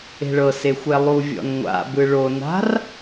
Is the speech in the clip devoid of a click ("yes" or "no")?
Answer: yes